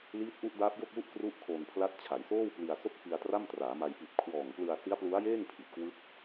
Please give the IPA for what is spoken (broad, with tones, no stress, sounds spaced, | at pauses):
l iː˦˥ t̚ ʔ u˦˥ ʔ d aː˦˥ p̚ j o˥˩ k̚ w u˥˩ ʔ k r u˥˩ ʔ kʰ oː˧ n pʰ l a˦˥ t̚ t͡ɕʰ a˩˦ j s oː˥˩ w p l i˧ a̯ s o˥˩ k̚ f i˧ a̯ t r a˥˩ m t r aː˩˦ m a˧ j p i˨˩ t̚ kʰ w ɔː˨˩ ŋ p l ɯ˧ a̯ s i˦˥ a̯ p l u˦˥ a̯ j eː˥˩ ŋ pʰ i˨˩ t̚ k w ɯ˦˥ k̚